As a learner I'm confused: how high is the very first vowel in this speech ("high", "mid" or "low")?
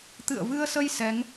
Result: high